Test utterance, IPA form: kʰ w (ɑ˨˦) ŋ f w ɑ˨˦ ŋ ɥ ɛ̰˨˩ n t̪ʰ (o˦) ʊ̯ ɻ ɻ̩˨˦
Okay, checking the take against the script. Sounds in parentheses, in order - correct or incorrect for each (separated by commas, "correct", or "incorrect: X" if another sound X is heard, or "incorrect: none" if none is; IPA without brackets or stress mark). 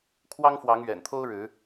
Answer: incorrect: ɑ˦, correct